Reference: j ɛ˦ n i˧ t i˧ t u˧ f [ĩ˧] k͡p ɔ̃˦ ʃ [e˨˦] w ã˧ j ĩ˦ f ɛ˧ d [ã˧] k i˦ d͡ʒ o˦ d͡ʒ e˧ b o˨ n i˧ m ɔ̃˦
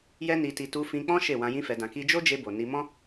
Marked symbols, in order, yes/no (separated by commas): yes, no, yes